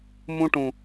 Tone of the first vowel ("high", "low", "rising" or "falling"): high